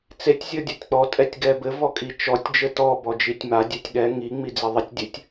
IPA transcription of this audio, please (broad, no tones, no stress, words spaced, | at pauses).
t͡setʲ zʲɔdʲɔtʲk͡pɔ tʼɛtʲɡɛbɘ vɔkʼit͡ʃɔtʲ d͡ʒɘtɔ bɔd͡ʒitʲma dʲɛtʲɠɛ ŋi ŋ͡mid͡ziðˤɘtʲ dʲɘtʲ